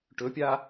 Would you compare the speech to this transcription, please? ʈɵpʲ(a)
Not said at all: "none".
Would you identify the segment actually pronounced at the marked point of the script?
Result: a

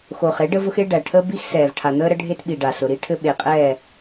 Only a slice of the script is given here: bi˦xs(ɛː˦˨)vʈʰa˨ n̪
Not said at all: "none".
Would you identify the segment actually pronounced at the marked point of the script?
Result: ɛː˨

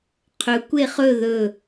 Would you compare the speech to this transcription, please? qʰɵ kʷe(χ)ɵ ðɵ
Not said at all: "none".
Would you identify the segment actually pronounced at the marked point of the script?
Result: χ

